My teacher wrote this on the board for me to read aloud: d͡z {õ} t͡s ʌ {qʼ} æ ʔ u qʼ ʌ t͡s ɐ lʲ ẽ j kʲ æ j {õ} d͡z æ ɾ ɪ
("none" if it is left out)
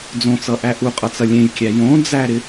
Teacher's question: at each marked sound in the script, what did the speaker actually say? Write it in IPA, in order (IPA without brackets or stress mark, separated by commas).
õ, ʔ, õ